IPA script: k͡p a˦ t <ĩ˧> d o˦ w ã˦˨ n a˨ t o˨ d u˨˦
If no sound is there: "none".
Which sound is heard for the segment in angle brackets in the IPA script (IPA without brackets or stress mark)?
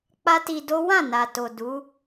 i˧